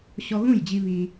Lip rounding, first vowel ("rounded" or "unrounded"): rounded